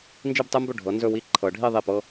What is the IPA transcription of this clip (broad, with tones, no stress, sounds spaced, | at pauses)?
n d͡ʒ i˥˧ b tˤ e˥ m b ɵ˥˩ ɖʱ ɤ˨˦ n z ɵ˥˧ w i˥˧ ǃʰ ɤ˨˩˦ ɖʱ i˥˧ ðˤ i˥˩ p ɤ˥